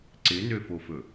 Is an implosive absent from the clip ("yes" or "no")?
yes